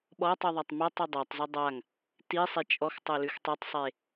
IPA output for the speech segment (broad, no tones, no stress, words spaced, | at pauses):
ɓɔtˤʉðˤatˤ matˤi dˤatˤzo dˤaŋ | tisˤe t͡ʃʼɔxtˤolʉx tˤøtˤsˤe